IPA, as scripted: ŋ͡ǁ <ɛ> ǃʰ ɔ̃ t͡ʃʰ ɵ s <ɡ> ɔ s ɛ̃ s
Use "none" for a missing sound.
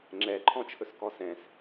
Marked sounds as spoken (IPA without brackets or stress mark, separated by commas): ɛ, k